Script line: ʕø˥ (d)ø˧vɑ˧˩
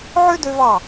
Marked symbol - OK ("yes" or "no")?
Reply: yes